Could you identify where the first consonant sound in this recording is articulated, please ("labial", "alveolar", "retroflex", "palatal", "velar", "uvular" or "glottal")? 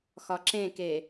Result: velar